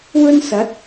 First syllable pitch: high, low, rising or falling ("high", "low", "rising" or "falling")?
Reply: high